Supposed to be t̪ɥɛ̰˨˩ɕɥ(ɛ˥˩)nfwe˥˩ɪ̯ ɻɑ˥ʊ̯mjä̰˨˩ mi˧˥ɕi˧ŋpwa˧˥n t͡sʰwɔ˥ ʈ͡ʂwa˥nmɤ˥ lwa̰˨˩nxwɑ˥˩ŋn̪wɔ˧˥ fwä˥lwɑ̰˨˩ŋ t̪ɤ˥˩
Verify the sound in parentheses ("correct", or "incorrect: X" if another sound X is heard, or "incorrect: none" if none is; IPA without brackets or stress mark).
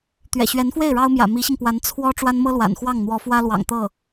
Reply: incorrect: ɛ˧˥